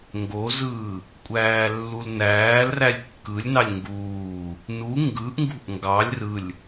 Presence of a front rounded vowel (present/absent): absent